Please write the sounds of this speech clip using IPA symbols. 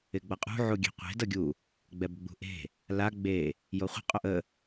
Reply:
ɪ ɡ͡b ʌ qʼ ṳ ʕ u ɡʲ e̤ qʷ e̤ d ʌ ɡʲ u | ɡ͡b ɛ b ɡ͡b ṳ ʔ e̤ | l a ɡ͡b e | j o χʷ ə̤ qʼ o ʔ ə

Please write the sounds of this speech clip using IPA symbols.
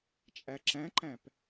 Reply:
t͡ʃʼ æ ǁ æ̃ ǃ æ̃ p

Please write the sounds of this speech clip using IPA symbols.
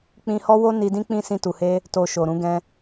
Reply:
k͡p ĩ˧ h ɔ˦ w o˦ n i˧ d ĩ˦ k͡p ĩ˦ s ĩ˧ t u˨ h e˧ | t o˧ ʃ o˨ ɾ ũ˧ ɡ ɛ̃˧

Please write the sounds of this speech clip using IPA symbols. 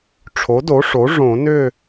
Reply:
ʈ͡ʂʰ o˩˥ d o˩˥ ʂ o˩˥ ʐ õ˨˩˦ n ʏ˥˨

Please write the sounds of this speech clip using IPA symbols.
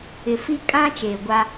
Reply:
ɪ˨ f i˦ kʼ ã˦ t͡ʃ eː˨ ɡʷ a˦

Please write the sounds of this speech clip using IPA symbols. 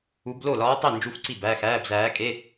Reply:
u˧˥ b l o˥˩ l ɒː˧˥ tˤ e˥˩ n d͡ʒ u˧˥ f ǀ i˥˩ b æ˧˥˧ x æː˧˥˧ b z æː˧˥ kʼ e˧˥˧

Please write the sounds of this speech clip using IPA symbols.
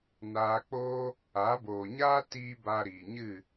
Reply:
n aː˧ k͡p oː˦ | a˨˦ b oː˨ ɲ aː˦ t iː˧ b a˧ ɾ iː˨ ɲ ɨ˦˨

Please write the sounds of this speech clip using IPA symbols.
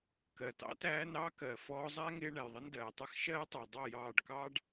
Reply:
k ɜ˨ t ɑ̰˦ t æː˦ n ɑ˦ k ɜ˨ f ɔː˧ zˤ æ˦ ŋ ɪː˧ ɳ æ˨ j ðˤ ɪ˦ n d ɜː˨ tˤ ʌ˦˨ x ʃ ɜː˦ tˤ ɜ˨ dˤ ʌ˦˨ j ɑː˦˨ ɖ k ɑː˦ ɖ

